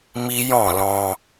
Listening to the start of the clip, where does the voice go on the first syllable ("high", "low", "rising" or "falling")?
high